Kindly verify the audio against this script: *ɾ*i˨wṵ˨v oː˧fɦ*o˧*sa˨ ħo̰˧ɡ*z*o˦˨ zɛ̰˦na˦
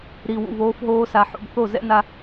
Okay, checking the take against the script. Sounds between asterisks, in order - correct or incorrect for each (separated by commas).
correct, incorrect, incorrect